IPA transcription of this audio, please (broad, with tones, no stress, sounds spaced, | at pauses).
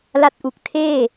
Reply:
l a˦˥ t̚ ʔ u˨˩ k̚ tʰ eː˥˩